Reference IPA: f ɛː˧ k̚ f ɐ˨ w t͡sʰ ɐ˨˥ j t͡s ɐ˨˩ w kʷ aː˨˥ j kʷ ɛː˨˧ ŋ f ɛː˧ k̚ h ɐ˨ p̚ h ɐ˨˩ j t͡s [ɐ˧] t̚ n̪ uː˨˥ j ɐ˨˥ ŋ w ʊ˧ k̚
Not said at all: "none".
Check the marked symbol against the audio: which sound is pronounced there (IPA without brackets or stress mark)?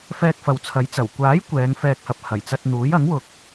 ɐ˧